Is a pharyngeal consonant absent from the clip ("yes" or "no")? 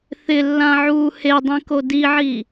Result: no